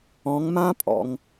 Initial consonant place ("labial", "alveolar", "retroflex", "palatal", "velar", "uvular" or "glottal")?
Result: velar